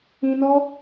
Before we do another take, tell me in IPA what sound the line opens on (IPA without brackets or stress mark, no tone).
ĩ